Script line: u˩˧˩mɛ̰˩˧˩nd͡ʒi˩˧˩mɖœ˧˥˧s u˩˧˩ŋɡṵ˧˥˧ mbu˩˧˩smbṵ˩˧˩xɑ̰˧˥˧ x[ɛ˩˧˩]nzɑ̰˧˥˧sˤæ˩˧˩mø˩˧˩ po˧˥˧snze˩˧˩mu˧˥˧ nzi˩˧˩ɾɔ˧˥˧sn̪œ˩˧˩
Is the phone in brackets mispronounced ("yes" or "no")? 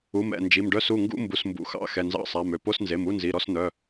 no